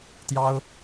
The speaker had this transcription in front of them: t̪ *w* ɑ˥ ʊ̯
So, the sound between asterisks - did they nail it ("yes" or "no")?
no